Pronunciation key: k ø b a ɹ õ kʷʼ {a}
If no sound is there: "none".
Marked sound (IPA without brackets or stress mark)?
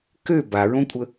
ə